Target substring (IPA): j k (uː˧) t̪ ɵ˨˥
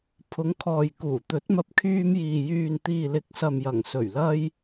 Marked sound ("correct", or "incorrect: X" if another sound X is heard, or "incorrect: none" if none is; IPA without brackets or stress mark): incorrect: uː˨˩